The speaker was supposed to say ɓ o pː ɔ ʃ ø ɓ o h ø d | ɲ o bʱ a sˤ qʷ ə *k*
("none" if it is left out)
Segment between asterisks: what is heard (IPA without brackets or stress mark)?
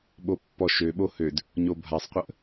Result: ʔ